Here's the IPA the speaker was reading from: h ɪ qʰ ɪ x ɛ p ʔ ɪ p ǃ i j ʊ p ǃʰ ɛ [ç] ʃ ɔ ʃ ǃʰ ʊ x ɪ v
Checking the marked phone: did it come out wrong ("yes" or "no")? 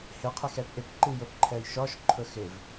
yes